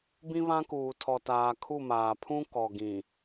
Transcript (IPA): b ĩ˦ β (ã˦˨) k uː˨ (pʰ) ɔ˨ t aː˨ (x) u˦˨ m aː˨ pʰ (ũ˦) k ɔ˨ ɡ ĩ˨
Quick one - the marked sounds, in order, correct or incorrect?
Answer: incorrect: ã˦, incorrect: tʰ, incorrect: kʰ, correct

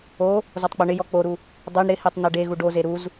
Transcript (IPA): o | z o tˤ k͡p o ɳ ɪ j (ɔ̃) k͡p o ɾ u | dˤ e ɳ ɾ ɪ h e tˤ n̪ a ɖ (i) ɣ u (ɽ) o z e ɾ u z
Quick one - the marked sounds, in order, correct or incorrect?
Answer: incorrect: ɔ, incorrect: e, incorrect: ɖ

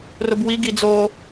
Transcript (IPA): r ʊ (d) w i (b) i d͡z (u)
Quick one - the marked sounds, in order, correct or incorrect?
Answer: incorrect: b, incorrect: ɡ, incorrect: o

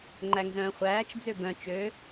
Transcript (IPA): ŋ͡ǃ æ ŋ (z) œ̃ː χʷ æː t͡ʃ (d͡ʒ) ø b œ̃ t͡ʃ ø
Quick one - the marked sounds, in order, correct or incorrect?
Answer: correct, incorrect: d͡z

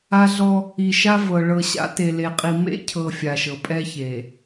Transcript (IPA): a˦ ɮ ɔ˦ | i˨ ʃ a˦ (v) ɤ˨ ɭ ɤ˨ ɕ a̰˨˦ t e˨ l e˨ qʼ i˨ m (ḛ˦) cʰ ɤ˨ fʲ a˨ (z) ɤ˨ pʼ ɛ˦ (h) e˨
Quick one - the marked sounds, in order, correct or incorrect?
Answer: correct, correct, incorrect: ʃ, incorrect: ç

